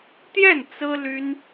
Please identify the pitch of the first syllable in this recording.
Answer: falling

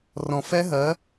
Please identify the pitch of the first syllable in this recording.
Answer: low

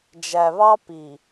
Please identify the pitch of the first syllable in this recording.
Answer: low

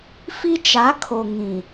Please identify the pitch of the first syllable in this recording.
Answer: high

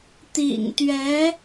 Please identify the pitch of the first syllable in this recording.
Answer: low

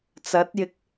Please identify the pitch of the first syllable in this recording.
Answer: rising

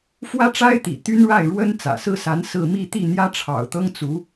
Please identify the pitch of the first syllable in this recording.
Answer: high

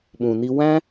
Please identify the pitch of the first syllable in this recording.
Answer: low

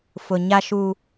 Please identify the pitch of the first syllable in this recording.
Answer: low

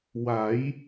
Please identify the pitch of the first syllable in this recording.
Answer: rising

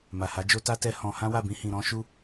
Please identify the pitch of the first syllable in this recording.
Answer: low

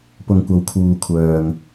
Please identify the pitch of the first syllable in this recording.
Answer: low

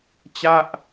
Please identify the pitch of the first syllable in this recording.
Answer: falling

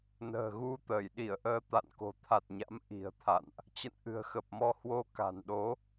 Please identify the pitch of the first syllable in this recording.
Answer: low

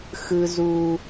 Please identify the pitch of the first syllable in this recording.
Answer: high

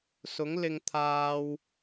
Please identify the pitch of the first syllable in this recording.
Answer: rising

